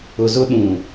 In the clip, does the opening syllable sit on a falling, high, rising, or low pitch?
low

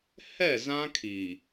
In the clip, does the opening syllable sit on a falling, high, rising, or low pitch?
falling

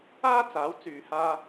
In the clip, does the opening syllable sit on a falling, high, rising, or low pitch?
high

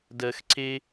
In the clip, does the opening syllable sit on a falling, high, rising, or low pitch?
low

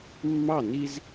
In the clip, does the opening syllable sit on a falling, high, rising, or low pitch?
falling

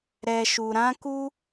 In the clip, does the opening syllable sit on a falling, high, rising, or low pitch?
low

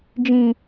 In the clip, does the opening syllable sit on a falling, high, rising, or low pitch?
high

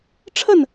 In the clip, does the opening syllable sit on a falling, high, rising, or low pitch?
falling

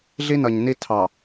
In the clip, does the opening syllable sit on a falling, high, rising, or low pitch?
high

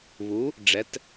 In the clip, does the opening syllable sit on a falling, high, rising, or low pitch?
rising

